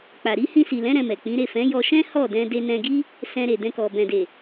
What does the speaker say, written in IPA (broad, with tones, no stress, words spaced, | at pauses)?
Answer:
k͡pa˨ ɾi˨˦ hĩ˧si˨lɛ̃˨˦ ɾɛ̃˧mɛ˨k͡pĩ˨˦ ɾe˦˨fɛ̃˨˦jɔ˧ ʃɛ̃˦hɔ˦˨dɛ̃˧ de˧nɛ̃˧ɡi˦ | sɛ̃˧ɾe˨dɛ̃˧kɔ˨ bɛ̃˨de˨